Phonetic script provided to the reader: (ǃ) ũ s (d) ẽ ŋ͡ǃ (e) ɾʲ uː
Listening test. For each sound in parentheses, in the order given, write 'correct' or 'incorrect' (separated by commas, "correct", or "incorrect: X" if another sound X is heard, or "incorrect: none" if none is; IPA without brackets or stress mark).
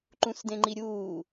correct, correct, incorrect: i